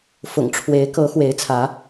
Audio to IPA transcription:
fʊ̰˨˩ŋʈ͡ʂʰwe˨˦ɪ̯kɤ˨˦ xwe˨˦ɪ̯t͡sʰä˨˦

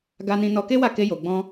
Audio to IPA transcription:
ɡa˧nĩ˧ nɔ˧ke˦wa˦˨ ke˧jo˨ɡ͡bɔ̃˧

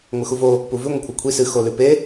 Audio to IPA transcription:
ŋʷɨxuvo | puvʉ ŋʷekʷʰɐkʷʰi sɨ xolʉpe

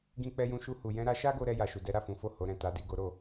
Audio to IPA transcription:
ɡĩ˧k͡pɛ˧jũ˧ʃu˧ hu˨jɛ̃˧ɾa˧ ʃa˦ɡo˧ɾɛ˧ ja˨ʃu˨dɛ˨˦ ɾa˦˨fũ˨˦fo˦˨ ho˨˦ɾɛ̃˦˨ta˨˦ di˦˨ɡo˨˦ɾo˦˨

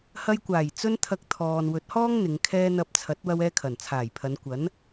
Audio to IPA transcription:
hɐ˧jkʷaː˨˩j t͡sɵ˥n t̪ʰɐ˧k̚t̪ʰɔː˨n wɵ˨˥t̚hɔː˥ŋ n̪ɪ˨˧ŋkʰɛː˥ n̪ɐ˧p̚t͡sʰɐ˨˥t̚ wɐ˥wɛː˥kʰɐ˨˩n t͡sʰaː˨˩jpʰɐ˨˧nkʷɐ˨˥n

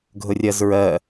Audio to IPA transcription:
ɡʱʊrʲɜzɹɜ

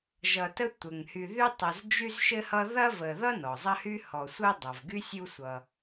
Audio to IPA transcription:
ʒʌ˨tə˦ tʷɘ˩ŋ hy˨ðy˦ tˤɐ˨z d͡ʒy˦zʃɘ˦hʌ˦ ðɐ˦və˨ ðʌ˥nɔ˩zˤɐ˦hy˦ hɔ˨sʷɘ˥ dˤʌ˩vɡy˥sʲu˦sʷʌ˨

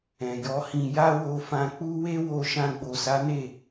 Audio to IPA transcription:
ɛ̃˨jɔ˨˦hĩ˧ ja˦wo˧fã˧k͡pu˦ we˦wo˧ ʃã˧ɡ͡bo˨sa˨˦ne˦˨

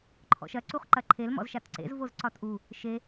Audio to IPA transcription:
ǃʰɔ̰ʃɐ ǀuχǃɐǃʰel mɔ̰zʃatǀḛz vozǀɒtʔu | ʃe

